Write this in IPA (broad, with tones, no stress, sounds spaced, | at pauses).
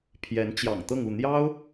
pʰ j ɛ˧˥ n t͡ɕ j ɑ̰˨˩ ŋ t̪ ɤ˥˧ ŋ u˥˩ n̪ j ɑ˥ ʊ̯